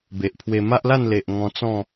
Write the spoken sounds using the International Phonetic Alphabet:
b e˨ ʔ pʰ w e˧ m a˦ ʔ l a˥˧ n l e˨ ʔ ŋ ɔ̃˧ t͡s ɔ̃˥˧

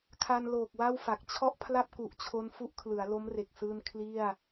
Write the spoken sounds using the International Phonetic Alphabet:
kʰ a˧ n l oː˨˩ k̚ w a˥˩ w f a˨˩ k̚ t͡ɕʰ ɔ˥˩ ʔ pʰ l a˥˩ p̚ k u˨˩ ʔ t͡ɕʰ o˧ n f u˦˥ ʔ kʰ l ɯ˩˦ a̯ l o˦˥ m r e˨˩ k̚ s ɯː˧ n kʰ l i˥˩ a̯

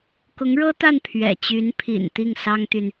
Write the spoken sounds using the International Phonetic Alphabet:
k ʊ˧˥ ŋ ɻ ɤ˥ t̪ a˥˩ n pʰ ɥ ɛ̰˨˩ t͡ɕ y˧˥ n pʰ ḭ˨˩ n t̪ i˥˩ ŋ s ɑ˥ ŋ t̪ y˨ n

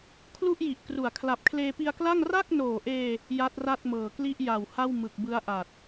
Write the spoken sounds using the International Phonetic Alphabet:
kʰ l u˥˩ ʔ j i˨˩ ʔ k r u˩˦ a̯ kʰ l a˨˩ p̚ kʰ l eː˧ p i˧ a̯ k l a˥˩ ŋ r a˥˩ k̚ n oː˨˩ ʔ eː˧ | j a˦˥ t̚ r a˥˩ t̚ m ɤː˨˩ k l i˥˩ ʔ j a˨˩ w h a˥˩ w m ɯ˨˩ k̚ b ɯ˦˥ a̯ ʔ a˨˩ t̚

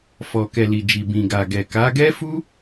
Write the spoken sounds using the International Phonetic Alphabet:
f ɔ˨ k ɛ˨ l i˨ d͡ʒ i˨ b ĩ˨ ɡ a˨ ɡ ɛ˨ k a˨˦ ɡ ɛ˦ f u˦

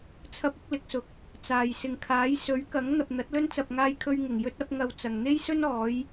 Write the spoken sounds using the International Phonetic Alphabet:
t͡sʰ ɐ˥ p̚ ɪ˥ k̚ l ɪ˨˥ k̚ s ʊ˨ k̚ | t͡s aː˨ j s ɪ˨ ŋ kʰ aː˨˥ j s ɵ˨˥ ɥ k ɐ˨˥ ŋ n̪ ɐ˨ p̚ n̪ ɐ˨˥ t̚ l ɵ˥ n t͡s ɐ˨ p̚ ŋ aː˥ j kʰ ɵ˥ ɥ ŋ ɪ˨˩ ŋ j ɵ˥ t̚ ɐ˨˥ p̚ ŋ ɐ˨ w t͡s ɐ˨ ŋ n̪ e˥ j s ɵ˥ n ɔː˨˥ j

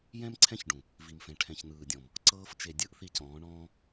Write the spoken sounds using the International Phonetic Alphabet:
j ɛ̃˦ m ǀʰ ɛ̃˦ ç ɖ ũ˨ | v i˨ m f ɛ̃˨ ʈʰ ɛ̃˨ ç n ɯː˨ dʲ ɔ̃˨ m | ǀ ɤː˧ f t͡ʃ e˨ dʲ ɯ˦ ʔ θ i˧ c ɔ̃ː˨˦ ɳ ɔ̃ː˧

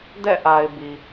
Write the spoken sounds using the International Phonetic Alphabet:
d ɛ̰˦˨ ʔ a˨ ɪ̯ b i˨

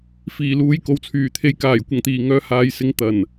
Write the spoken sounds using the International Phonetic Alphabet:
f iː˨˩ l uː˨˧ j k o˨ w t͡sʰ yː˨˩ t̪ʰ e˨˧ j k aː˨˩ j kʷ ɐ˨˩ ŋ t̪ iː˨˩ ŋ œː˨ h aː˨ j s ɪ˨ ŋ t̪ ɐ˨˩ n

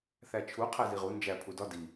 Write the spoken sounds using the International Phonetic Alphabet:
θ æ t͡ʃʰ u qʰ æ z i ʁ u n d͡ʒ æ pʰ u d ɒ d i

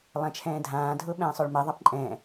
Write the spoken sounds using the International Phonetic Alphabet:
lˠ æ̃ t͡ʃʰ ɛ̃ː dʱ ãː dʱ ʊː ɓ ɛ̃ː sˤ ʊː ɭ m ɛ ðˤ a p ǃʼ ɛ̃

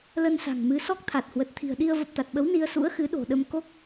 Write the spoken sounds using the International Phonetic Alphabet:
l ə˧ n s a̤˨˩ ŋ m ɨ˨˦ s ɔ˦˥ k̚ t̪ʰ a˨˩ t̚ h w ə˨˩ t̚ t̪ʰ i̤˨˩ ə̯ ɗ i˧ ə̯ v ə˨˩ p̚ t̪ a˨˩ t̚ ɓ ə˨˦ w n i˧ ə̯ s ṵ˧˥ ə̯ x ɨ˨˦ ɗ o̤˨˩ ɗ ə˧ m k o˦˥ k̚

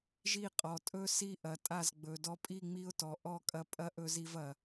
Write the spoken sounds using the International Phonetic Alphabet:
ʒ i˦˨ qʼ ɔ˨ tʼ ɵ˦ s i˦ ʔ ɐ˨ tʼ a˦˨ z ɡ͡b ɵ˨ d ɔ˧ pʼ i˦˨ ŋ͡m i˦ ʊ̯ t ɔ˨ ʔ ɔ˦˨ kʼ ɐ˧ pʼ ɐ˦ ʔ ɵ˧ z i˧ v ɐ˨

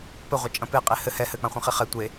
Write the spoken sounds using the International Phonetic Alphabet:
p ɘ ʁʷ ɐ t͡ʃʼ ɐ̃ p e qʼ e h ɘ h ɛ h ɘ k͡p ã χʷ ɐ̃ χ i χ ɛ tʷ e

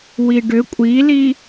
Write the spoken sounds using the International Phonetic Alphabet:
w i ɖ ʏ kʷʼ i l i

